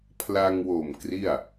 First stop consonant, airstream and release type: aspirated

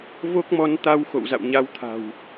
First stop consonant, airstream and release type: plain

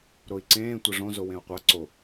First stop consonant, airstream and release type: click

